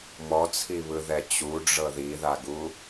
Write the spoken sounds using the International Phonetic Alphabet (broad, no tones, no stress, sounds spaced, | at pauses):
m ɔ t͡sʰ i β ɯ ð ɛ t͡ɕ u ɖ͡ʐ ɤ ð i ð a ɡ u